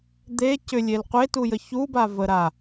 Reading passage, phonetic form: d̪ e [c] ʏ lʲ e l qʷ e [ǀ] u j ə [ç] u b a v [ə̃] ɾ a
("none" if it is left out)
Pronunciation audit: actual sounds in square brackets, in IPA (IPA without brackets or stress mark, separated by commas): c, t, ç, ə